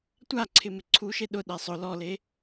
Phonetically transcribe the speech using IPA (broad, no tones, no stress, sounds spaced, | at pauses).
tʷ a ǀʰ ɪ m ɪ ǀʰ u ʃ e ɗ ʊ ɗ ɛ sˤ ʊ l ɔ l e